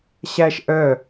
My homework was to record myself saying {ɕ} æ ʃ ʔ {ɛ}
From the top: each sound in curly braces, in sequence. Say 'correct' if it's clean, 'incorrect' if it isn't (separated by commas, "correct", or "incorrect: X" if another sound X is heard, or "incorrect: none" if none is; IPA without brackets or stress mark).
correct, incorrect: œ